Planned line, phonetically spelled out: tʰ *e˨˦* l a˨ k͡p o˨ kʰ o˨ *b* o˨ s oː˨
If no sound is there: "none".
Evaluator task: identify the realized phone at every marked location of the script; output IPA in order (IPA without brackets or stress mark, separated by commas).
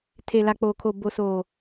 e˨, b